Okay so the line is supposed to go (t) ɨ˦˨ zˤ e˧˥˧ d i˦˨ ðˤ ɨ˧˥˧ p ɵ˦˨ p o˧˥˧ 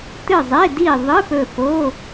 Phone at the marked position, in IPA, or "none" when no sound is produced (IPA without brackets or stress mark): t